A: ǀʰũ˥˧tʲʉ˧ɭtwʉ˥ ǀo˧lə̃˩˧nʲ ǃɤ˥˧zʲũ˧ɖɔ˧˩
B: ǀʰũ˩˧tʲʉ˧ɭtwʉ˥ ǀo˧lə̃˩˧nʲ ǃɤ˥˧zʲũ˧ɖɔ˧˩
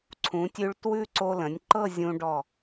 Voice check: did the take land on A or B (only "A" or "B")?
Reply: B